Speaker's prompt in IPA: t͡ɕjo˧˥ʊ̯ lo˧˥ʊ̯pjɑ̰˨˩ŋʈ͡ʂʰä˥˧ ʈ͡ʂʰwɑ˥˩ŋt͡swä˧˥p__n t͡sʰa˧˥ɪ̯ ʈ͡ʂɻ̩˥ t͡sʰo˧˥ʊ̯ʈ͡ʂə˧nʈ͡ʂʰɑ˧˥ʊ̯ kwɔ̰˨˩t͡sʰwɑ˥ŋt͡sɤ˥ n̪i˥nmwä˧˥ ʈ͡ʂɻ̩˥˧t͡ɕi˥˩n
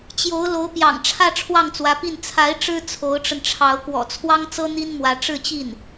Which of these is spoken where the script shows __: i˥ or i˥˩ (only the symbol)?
i˥˩